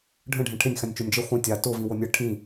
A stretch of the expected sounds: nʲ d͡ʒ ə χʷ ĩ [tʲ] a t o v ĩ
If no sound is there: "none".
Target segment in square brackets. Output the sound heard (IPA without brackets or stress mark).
tʲ